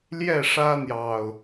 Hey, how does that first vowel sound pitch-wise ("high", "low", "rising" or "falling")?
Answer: falling